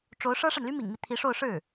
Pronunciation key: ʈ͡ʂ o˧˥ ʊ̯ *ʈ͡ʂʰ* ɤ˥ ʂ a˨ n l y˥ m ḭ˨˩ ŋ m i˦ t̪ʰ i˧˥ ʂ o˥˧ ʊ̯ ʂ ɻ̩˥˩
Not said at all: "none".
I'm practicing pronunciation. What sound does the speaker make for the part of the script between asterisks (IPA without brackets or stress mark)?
ʂ